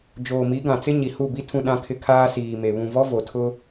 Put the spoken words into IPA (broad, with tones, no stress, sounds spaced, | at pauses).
d͡ʒ oː˨ m i˨˦ ɡ ã˨ t͡s ɪ˦ ɲ i˨ h u˦˨ b i˦ tʰ ũ˦ ɗ ã˦ kʰ ɪ˦ kʰ aː˦ s iː˨ m e˨ β ũ˨ v ɔ˦ v o˨ tʰ ʊ˦